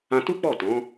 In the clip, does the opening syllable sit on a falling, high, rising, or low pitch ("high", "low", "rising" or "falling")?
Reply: high